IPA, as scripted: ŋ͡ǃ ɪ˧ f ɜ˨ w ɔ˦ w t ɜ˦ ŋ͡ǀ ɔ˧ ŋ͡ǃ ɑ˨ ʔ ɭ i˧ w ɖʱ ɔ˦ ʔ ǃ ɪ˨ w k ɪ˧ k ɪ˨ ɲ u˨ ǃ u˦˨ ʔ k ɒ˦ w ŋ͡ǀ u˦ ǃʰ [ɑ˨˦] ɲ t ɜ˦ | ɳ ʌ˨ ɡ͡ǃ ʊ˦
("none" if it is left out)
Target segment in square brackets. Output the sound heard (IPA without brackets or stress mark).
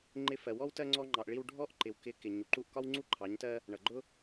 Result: ɑ˨˦